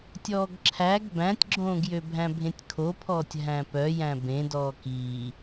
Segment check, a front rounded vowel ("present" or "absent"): present